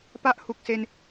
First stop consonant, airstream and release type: plain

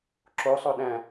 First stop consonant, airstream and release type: click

